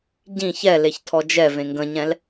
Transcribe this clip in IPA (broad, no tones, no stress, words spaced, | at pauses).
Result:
ɟĩ çɛ leçtʰɔd͡ʒɛ vẽŋɡə̃ɲɛ̃l